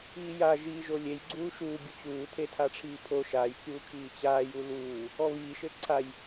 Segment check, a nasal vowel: absent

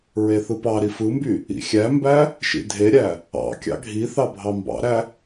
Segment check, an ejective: absent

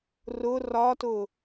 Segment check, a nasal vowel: absent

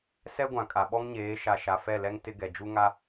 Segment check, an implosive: present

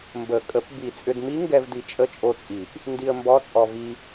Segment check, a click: absent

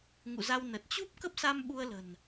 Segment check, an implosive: present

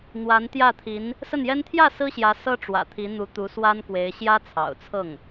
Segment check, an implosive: absent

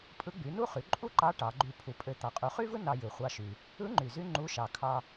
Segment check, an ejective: present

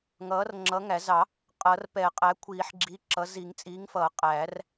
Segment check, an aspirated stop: present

